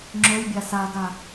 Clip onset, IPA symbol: ŋ͡ǁ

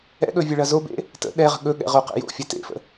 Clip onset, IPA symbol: ɛ̰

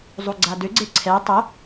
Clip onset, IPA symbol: zˤ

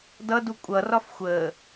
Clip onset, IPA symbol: d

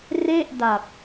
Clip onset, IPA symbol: r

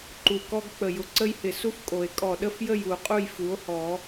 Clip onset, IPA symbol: ǃ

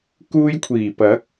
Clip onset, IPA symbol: k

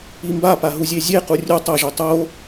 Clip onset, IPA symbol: i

